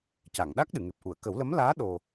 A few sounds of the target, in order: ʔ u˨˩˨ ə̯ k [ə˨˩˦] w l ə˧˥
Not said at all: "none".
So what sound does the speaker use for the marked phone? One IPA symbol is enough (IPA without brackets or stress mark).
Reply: ə˨˩˦